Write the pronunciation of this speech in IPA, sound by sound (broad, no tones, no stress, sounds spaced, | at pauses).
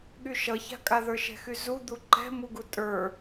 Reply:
ɠ y ʃ ʌ ç a̤ kʼ a ð ə˞ ʃ ɛ̤ x y z u d̪ u ǃ ɛ̤ m u ɡ u tʼ ə˞